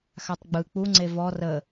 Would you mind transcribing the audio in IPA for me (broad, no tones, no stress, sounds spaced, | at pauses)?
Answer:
x a tˤ ɡ͡b ɯ k͡p u ŋ͡ǀ e v ɔ r ə